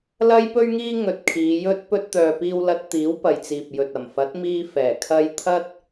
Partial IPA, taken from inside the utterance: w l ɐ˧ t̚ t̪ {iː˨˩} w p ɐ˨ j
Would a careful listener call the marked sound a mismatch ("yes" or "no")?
yes